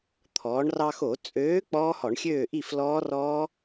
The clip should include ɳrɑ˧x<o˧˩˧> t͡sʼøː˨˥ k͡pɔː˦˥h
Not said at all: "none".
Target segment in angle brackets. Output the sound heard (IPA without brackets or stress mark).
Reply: o˧˩˧